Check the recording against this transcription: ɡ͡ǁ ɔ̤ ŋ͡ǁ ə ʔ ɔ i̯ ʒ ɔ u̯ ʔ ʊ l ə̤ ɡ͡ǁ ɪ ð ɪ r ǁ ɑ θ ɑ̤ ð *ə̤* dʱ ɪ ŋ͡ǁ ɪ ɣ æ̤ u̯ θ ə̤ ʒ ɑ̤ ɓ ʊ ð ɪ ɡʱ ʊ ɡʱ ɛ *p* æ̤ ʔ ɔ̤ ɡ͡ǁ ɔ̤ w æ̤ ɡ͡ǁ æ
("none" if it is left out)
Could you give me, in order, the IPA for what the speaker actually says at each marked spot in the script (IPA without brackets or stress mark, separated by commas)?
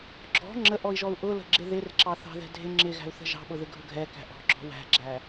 ɛ̤, k